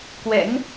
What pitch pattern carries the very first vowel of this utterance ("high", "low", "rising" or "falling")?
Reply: rising